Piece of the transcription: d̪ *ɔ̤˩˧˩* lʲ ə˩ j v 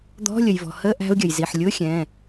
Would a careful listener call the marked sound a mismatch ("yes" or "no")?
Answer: yes